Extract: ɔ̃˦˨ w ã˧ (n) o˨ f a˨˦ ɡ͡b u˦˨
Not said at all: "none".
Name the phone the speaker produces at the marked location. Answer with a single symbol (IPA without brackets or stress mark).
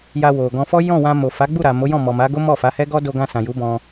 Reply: m